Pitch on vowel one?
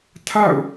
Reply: falling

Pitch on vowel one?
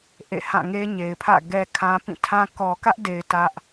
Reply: falling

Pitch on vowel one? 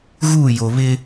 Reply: falling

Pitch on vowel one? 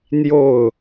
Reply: falling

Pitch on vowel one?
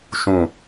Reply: low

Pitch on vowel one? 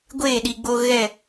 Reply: falling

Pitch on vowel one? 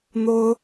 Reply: high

